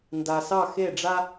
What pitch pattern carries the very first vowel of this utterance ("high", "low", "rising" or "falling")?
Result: low